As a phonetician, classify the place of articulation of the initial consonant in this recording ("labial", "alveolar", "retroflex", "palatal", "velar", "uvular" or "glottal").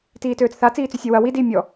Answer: alveolar